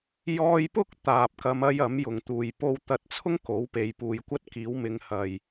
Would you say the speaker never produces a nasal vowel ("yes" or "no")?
yes